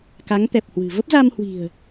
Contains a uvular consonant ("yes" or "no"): no